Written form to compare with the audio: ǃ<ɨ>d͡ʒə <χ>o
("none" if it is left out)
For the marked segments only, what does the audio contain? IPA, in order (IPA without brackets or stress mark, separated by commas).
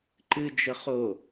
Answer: ɨ, χ